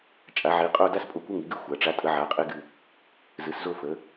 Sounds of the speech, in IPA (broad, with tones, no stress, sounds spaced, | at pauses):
t͡ʃʼ a˩˧ ʕ i˩˧ qʼ o˦˨ d a˦ s pʼ o˨˥ kʷ ə˦ ŋ i˩˧ ɡ ɨ˦ xʷ a˩˧ ʈ͡ʂ a˨˥ tʼ ə˨˥ ʕ a˨˥ qʼ e˦ ɡ ɨ˦˨ | z ɨ˩˧ s z o˦˨ f ə˩˧